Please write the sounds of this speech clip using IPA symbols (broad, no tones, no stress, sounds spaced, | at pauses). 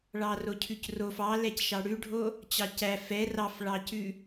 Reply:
ɭ ɑ r o cʰ ʉ c r o f ɑ l ɛ c ʃ ɑ ɽ ʉ ɖʱ o | t͡ɕ ɑ c æ f ɛ r ɑ f ɭ ɑ c ʉ